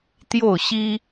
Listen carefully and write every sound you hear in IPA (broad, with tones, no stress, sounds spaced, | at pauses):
t̪ j o˥˨ ʊ̯ ɕ i˦